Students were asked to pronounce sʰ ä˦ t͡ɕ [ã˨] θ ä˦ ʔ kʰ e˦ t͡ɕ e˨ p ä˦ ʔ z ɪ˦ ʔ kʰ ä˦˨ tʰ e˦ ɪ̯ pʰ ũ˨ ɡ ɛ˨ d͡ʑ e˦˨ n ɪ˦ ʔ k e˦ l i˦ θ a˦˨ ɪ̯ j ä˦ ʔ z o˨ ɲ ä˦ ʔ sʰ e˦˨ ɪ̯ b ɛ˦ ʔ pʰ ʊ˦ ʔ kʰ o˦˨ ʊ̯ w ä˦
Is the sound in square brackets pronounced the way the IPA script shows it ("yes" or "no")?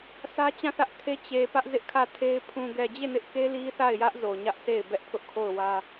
no